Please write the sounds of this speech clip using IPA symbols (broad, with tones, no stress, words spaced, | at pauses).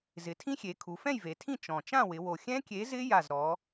zɪ˩˧tʰĩ˦˥xʲe˩˧ kʰu˩˧fɛ̃˥˨jve˩˧tʰĩ˥˨ t͡ʃɔ̃˨˩ t͡ʃã˥˨wɪ˩˧wo˨˩ xʲɛ̃˦˥kʲe˨˥zɪ˦˥ ja˥˨zɾɔ˨˥